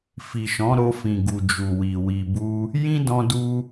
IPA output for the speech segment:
f i˨ ʃ ɔ̃˨˦ ɾ o˧ f ĩ˨ ɡ u˨ d͡ʒ u˨ w i˨ w i˨ b u˧ | j ĩ˦ d ɔ̃˧ d u˧

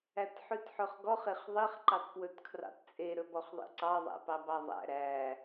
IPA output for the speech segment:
æ t ħ ʉ t ħ ɵ χ ɡ ɔ χ e χ ðˤ i χ ǃ ɑ t p w ɵ t kʰ r ɑ̰ t t͡sʼ e ɾ ɵ b ɔ χ ðˤ ḭ ǀ ɑ ðˤ æ̰ p ɑ b ɑ ðˤ æ̰ ɾ æ

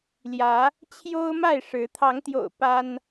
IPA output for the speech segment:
l j ä˨˦ | t͡ɕʰ j o˦ ʊ̯ m a˥˨ ɪ̯ ʂ ɻ̩˨˦ t̪ʰ ɑ˨˦ ŋ t̪ j o̰˨˩ ʊ̯ p a˦ n

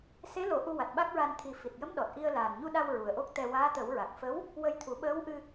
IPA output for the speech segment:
s e˧˥ l o˨˩˦ ʔ u˧ w a˨˩ t̚ ɓ a˦˥ k̚ ɹ a˧ n t̪ʰ i˨˩ f i˨˩ t̚ j ə˧˥ m ɗ ɔ˨˩ t̚ ʔ i˧ ə̯ l aː˨˩ n ɲ u˧ ɗ a˧ w ɹ u˨˩ ə̯ ʔ o˦˥ k̚ t̪ ɛ˧ w aː˧˥ t̪ ə˨˩˦ w ɹ a˨˩ k̚ f ə˧˥ w | w ə˧ j t̪ʰ u˨˩˦ ɓ əː˧˥ w ʔ ɨ˧

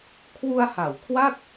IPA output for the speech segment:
kʰ w u˧ a̯ h a˩˦ w kʰ w a˥˩ t̚

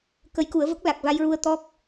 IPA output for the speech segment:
k ə˧˥ j k u˨˩˦ ə̯ v ə˦˥ k̚ l a˨˩ k̚ v a˧ j ɹ u˧ ə̯ t̪ ɔ˦˥ k̚

